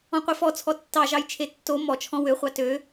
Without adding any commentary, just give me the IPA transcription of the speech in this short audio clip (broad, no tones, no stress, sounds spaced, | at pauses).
ɔ̃ qʷ i f ɔ t͡sʰ ɔ tː ɑ ʒ ɑ j t͡ʃʰ e tː o m ɔ t͡ʃʰ ɔ̃ w ø χʷ ɑ t ø